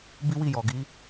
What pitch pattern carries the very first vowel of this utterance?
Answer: high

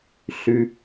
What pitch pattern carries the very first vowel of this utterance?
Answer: low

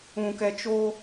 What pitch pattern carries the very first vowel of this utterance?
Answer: low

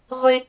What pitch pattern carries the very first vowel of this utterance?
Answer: high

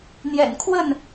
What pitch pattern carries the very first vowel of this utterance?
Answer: low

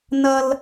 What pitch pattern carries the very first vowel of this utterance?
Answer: high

